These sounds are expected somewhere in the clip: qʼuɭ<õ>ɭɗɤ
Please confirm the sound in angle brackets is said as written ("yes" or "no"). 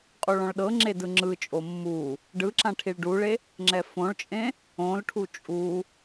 no